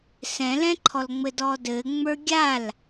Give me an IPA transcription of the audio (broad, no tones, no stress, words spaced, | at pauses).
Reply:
sɛ̃lɛ̃ǃʰɔlŋ͡mɘ dɔdɘ ŋ͡mə˞ɡʲal